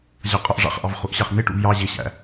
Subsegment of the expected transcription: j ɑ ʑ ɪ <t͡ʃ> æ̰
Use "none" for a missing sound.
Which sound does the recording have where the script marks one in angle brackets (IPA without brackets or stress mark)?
ɕ